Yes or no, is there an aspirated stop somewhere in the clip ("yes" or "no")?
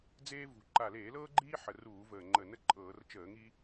no